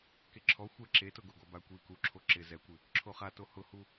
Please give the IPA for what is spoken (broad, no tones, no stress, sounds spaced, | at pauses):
k e ǁʰ ɔ xʷ ɛ ǁ e t ʊ ɡ o ɡ ɔ b a kʷ i k u ǁʰ o ǁ ɪ z ɛ kʷ ɪ | ǁʰ o χ a t o h ʊ h u